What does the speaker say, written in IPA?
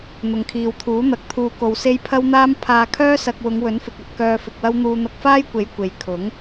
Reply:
n̪ ʊ˨ ŋ kʰ iː˨ w t̪ʰ uː˨˥ n̪ ɐ˧ k̚ t̪ʰ uː˧ k o˧ w s e˥ j pʰ ɐ˥ w n̪ aː˥ m pʰ aː˧ kʰ œː˥ s ɐ˧ k̚ w ʊ˨˧ ŋ w ɵ˨˥ n f ɪ˨ k̚ ɐ˧ t̚ k œː˧ f ɪ˧ k̚ w ɐ˥ w n̪ uː˧ n̪ ɐ˧ k̚ f aː˥ j kʷ e˨˥ j kʷ e˨ j kʰ ʊ˨˥ ŋ

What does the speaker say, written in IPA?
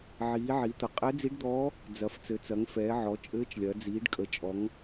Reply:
ʕ iː˩˧ ʕ i˩˧ t̪ ə˩˧ qʼ ɛ˧˥ d͡z i˧˥ ɖ d̪ ɔː˧˥ | d͡z ɐ˩˧ f t͡s ɘ˩˧ t͡s ɐ˩˧ ŋ f ɛː˩˧ ʕ ɔ˩˧ t͡ʃʼ ɘː˧˥ t͡ʃ lʲ ɐ˩˧ d͡z iː˩˧ ɖ kʼ ə˩˧ t͡ʃʼ ɔ˩˧ ŋ

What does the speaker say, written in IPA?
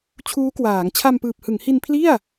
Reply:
t͡ɕʰ uː˦˥ k w aː˩˦ ŋ t͡ɕʰ a˧ m p ɯː˨˩ p̚ h ɯ˩˦ ŋ h i˧ n pʰ l i˥˩ a̯

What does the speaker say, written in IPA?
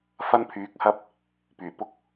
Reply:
f ɐ˥ n pʰ yː˨˥ k̚ h ɐ˥ p̚ | p yː˨˩ p ʊ˥ k̚

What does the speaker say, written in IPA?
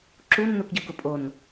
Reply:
ǁ u nː u k ɟ ɪ w k ʊ pʼ o n

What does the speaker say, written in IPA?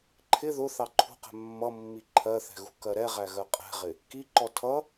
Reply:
ǃʰ ɪ ð ʊ θ ɑ ǃʰ ṳ q ɛ̤ mː ʌ mː i ǃʰ ɜ θ ɛ̤ ɣ ṳ k ɜ ɾ ɛ ʁ æ ɣ ɜ qʼ ɛ̤ ʁ ɪ | k i ǃ ɔ tʰ ʌ

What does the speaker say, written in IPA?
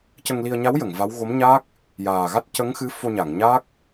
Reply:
c ə˧ ŋ l i˧ ə̯ ɲ a˧˥ w j ə˨˩˨ ŋ v a˧˥ w ɣ o˧˥ m ɲ aː˦˥ k̚ | j aː˨˩ ɣ a˦˥ t̚ c ə˧˥ ŋ x ɨ˧˥ f o˧ ɲ a˨˩˨ ŋ ɲ aː˦˥ k̚

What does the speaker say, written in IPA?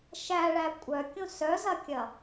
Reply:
ʃ æ ɭ æ kʷʼ œ kʲ õ s œ z ɐ kʲ ɐ

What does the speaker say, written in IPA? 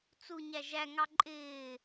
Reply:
t͡s u ɲ æ ʒ æ ŋ ɑ ǃʼ ɪː

